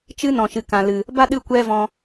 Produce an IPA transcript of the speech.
t͡ʃɨ˦nɔ̃˨ ʃɨ˨kã˨lɨ˨ | ba˦ɗɨ˦˨ kʷɛ˦vɔ̃˧

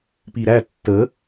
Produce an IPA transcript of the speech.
piɾæ tːə

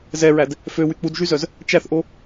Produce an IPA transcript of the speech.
zɛɹæd | føwy k͡pudʒyzœz | t͡ʃæθʔo

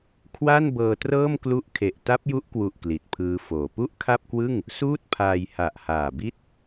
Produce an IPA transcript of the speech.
kʰwa˥˩nbɤː˧trɤː˥˩m klu˦˥ʔkʰe˨˩ʔ ta˦˥p̚ju˦˥ʔkwu˨˩ʔ kli˨˩t̚pʰɯː˦˥foː˨˩ pu˥˩ʔkʰa˥˩p̚kwɯ˥˩ŋ | suː˥˩t̚pʰaː˧jha˨˩ʔ haː˨˩bi˥˩t̚

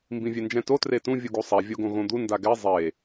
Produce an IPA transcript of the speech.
mbĩvʲɛnd͡ʒɛ̃to tretũ vʲuɡusˤɛ vʲoɡõɣõd̪u ndaɡɛ zˤe

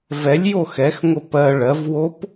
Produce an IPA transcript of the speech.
vɛlʲjo xɛxŋʷə pɜ ɭɜvwop

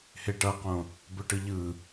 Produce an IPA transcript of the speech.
heʈʌqõ | bɵʈɯʎɯ

